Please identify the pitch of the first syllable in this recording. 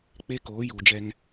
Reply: high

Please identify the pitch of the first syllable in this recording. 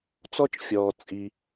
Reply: high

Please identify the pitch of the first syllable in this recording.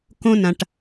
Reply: high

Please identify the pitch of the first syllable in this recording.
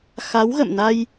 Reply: rising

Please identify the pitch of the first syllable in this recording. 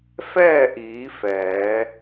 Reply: falling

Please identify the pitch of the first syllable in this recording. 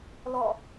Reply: falling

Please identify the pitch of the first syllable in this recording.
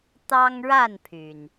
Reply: high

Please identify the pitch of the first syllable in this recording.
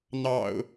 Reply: low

